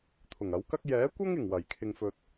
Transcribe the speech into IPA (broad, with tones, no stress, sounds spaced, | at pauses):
t̪ʰ ʊ˨˩ ŋ ɐ˨˥ w k ɐ˥ k̚ j ɛː˨˥ kʷ ɐ˥ ŋ ɪ˨˩ ŋ w ɐ˨˩ j kʰ ɪ˨ ŋ f ɵ˨ t̚